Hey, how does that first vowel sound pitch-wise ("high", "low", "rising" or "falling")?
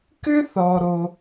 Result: high